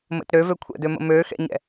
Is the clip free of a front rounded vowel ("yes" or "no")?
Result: no